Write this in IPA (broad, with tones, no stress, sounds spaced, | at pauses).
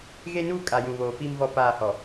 ɣ e˦ n uː˦ kʼ a˨ j ũ˨ β oː˨ f iː˦ m v ɔ˦ p aː˦˨ h ɔ˨